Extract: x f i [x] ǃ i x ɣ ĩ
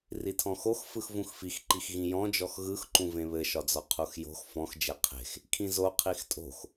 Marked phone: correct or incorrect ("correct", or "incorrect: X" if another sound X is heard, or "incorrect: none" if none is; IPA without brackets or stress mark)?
correct